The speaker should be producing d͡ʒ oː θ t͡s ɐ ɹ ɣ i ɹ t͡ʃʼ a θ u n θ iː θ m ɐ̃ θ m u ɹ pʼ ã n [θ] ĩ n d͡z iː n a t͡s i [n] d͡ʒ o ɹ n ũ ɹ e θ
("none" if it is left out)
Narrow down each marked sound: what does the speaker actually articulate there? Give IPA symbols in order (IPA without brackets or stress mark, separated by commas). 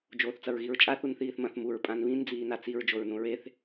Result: β, ɹ